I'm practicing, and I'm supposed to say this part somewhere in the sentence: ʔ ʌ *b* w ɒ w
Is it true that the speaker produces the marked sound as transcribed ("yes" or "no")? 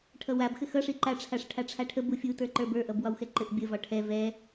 yes